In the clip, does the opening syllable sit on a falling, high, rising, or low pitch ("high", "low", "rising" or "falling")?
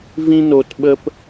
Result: high